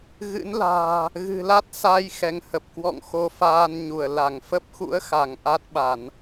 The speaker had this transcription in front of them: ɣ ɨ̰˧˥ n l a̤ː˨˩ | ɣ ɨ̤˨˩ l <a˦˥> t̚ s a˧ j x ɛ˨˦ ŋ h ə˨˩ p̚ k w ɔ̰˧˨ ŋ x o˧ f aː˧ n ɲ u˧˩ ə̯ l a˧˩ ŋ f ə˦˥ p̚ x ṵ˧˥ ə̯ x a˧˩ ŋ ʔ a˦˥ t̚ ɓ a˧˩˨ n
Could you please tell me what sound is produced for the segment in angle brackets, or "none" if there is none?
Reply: a˦˥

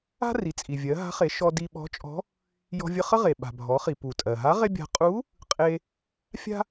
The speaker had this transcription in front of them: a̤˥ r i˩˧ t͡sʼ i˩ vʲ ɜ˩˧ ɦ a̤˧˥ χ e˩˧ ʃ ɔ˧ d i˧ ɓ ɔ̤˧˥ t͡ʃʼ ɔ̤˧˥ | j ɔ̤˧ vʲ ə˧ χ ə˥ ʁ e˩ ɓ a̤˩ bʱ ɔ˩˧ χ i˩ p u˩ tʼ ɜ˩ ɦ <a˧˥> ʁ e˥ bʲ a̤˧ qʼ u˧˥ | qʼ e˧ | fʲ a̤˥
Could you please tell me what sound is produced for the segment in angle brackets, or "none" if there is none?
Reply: a˧˥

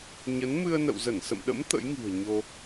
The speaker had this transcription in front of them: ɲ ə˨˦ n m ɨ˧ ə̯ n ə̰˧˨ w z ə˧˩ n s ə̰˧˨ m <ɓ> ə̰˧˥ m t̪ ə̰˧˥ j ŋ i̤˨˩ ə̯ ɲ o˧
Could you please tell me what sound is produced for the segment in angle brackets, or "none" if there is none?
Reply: ɗ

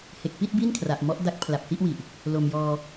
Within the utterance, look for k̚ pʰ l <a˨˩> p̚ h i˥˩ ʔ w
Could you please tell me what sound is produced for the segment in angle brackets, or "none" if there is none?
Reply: a˨˩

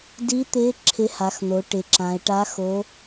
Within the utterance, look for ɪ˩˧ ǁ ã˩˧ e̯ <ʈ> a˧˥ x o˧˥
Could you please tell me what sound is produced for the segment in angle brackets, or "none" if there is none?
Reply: ʈ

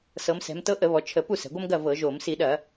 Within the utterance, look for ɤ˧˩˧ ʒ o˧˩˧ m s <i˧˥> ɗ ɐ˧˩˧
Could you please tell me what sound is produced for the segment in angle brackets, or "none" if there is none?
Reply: i˧˩˧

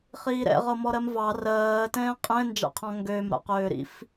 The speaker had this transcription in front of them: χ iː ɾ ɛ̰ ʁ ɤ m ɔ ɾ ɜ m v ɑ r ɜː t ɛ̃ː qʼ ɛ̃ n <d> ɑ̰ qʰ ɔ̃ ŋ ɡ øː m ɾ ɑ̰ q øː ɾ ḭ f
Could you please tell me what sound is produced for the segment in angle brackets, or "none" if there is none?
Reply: d͡ʒ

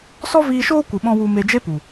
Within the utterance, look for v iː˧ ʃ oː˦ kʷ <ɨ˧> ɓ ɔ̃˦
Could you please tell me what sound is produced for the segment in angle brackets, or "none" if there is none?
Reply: ɨ˧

